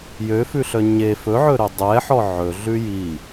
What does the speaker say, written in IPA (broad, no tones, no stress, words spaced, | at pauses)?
jøfʉɬœ ɲe fɵʕɵɾø dˤɛħɔ ʕɵ ɮʉji